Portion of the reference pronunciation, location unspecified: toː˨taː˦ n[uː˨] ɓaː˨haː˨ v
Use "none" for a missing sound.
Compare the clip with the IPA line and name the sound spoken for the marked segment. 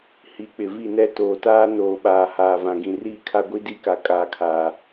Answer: oː˨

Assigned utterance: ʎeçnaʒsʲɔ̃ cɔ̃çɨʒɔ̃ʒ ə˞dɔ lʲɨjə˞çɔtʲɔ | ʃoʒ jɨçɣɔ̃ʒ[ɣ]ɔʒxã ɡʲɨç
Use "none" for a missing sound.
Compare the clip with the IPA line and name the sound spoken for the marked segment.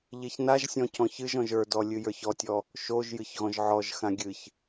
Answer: ʕ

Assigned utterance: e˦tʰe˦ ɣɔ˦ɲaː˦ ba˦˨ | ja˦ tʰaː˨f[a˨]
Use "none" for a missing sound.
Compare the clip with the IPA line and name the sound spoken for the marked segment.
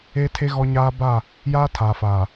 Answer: aː˨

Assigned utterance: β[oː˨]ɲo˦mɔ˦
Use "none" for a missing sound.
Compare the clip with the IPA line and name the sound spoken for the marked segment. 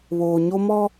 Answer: oː˨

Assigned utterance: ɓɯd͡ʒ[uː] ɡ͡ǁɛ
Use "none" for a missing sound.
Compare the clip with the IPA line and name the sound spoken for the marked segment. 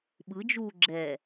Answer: uː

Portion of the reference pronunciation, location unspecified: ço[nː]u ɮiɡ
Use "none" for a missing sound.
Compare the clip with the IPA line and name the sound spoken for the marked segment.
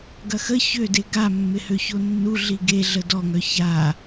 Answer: nː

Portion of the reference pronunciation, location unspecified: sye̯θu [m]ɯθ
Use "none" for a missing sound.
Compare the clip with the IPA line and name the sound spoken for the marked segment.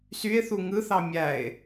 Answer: ŋ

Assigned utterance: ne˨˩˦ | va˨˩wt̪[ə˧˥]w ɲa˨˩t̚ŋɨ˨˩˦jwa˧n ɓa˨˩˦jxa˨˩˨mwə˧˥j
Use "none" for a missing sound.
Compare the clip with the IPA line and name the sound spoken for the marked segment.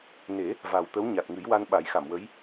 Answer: ə˧˥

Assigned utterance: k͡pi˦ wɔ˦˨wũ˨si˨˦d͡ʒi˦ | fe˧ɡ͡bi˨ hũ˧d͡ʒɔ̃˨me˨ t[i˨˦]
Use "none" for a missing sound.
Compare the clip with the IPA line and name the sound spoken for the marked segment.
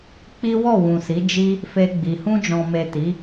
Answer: i˨˦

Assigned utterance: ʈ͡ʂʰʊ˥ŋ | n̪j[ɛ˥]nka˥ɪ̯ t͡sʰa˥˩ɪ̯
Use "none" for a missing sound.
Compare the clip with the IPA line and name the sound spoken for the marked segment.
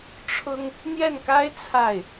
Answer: ɛ˥˩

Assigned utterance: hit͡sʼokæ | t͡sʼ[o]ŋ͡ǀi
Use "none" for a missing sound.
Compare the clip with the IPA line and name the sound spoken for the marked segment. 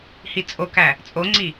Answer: o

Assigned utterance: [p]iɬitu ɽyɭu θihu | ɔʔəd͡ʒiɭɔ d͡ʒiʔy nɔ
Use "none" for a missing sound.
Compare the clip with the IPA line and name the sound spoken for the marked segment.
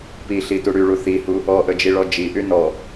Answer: p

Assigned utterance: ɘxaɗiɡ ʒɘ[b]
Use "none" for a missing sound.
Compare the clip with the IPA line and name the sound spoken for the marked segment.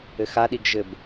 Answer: b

